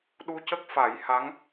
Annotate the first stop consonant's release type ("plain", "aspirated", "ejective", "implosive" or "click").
implosive